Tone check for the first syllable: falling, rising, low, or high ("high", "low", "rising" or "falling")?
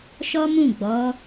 high